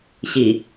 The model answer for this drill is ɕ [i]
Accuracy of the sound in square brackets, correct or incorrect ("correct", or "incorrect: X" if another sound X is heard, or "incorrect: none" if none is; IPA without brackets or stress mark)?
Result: correct